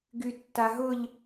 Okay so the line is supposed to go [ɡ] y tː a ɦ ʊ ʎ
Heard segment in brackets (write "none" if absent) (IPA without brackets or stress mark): ɡ